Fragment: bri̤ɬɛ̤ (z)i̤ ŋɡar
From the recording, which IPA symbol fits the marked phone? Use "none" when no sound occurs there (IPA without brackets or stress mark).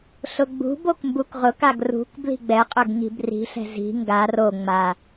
z